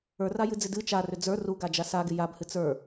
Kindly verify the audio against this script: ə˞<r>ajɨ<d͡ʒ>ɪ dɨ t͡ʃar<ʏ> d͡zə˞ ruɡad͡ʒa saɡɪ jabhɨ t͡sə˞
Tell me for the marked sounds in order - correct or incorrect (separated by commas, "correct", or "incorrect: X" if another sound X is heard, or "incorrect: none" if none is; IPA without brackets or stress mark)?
correct, incorrect: d͡z, correct